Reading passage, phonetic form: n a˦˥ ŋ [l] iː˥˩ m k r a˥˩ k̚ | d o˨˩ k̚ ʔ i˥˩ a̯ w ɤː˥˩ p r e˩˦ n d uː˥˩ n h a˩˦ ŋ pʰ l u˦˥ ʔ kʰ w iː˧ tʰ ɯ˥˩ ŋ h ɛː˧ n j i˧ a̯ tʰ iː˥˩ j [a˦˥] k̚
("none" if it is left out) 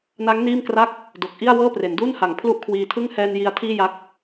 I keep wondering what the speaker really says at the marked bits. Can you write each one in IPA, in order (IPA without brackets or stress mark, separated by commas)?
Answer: n, a˦˥